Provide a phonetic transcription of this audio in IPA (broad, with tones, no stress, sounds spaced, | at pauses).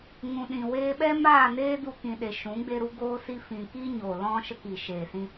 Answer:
ŋ ũ˨ ɗ ĩ˨ w eː˧ ɓ ɛ˦ m aː˦˨ n eː˦ d u˧ k ĩ˨ ɗ e˨ ʃ ũ˨˦ ɡ͡b e˧ ɾ u˦ ɡ oː˦ s i˦ f ĩ˨ k i˦ ɲ o˨ l ɔ̃˦ ʃ ə˧ k i˨ ʃ eː˨ s ĩ˧